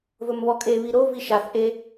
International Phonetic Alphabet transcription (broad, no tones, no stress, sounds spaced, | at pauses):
v ɵ m β ɔ kʼ e β i ɾ o v i ʃ a θ ʔ e